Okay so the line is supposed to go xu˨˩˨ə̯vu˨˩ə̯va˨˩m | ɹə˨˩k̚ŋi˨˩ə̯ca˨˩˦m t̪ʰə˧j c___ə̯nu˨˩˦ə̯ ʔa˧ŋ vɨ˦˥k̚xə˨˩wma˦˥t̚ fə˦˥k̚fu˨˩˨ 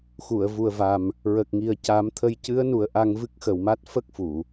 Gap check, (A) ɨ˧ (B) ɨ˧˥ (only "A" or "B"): B